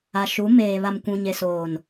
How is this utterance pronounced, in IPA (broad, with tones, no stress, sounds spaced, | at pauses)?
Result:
a˨ ʃ u˨˦ m eː˨ β a˨ m kʷ ũ˨ ɲ e˨ s oː˨ n